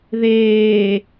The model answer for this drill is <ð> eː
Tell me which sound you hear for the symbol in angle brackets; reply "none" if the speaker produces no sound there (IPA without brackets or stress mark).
ð